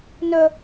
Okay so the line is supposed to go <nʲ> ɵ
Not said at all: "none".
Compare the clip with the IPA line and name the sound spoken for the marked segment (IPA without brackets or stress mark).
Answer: n